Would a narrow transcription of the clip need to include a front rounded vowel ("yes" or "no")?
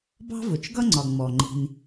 no